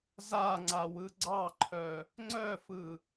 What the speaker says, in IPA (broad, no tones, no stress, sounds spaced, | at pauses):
z a ŋ͡ǀ a w ɯ ɡ͡ǀ ɑ ǃʰ œ | ŋ͡ǀ œ f ɯ